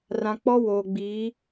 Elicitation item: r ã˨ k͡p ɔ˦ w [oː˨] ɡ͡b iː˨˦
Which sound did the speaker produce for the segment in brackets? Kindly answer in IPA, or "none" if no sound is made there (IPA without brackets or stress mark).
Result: oː˨